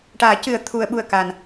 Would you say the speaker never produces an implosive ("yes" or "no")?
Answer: no